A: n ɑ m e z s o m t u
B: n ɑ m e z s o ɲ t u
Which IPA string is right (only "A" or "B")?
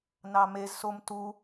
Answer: A